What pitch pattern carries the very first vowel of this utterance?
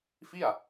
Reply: falling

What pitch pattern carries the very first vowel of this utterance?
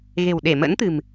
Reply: low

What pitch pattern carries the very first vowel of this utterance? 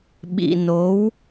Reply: low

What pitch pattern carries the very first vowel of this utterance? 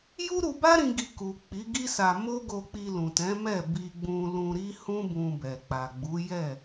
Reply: high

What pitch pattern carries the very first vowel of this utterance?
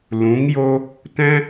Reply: rising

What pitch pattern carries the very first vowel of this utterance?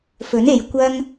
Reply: rising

